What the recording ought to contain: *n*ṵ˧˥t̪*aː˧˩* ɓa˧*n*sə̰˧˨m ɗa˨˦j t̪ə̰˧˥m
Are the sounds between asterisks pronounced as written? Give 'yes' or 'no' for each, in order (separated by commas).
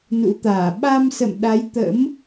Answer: yes, yes, no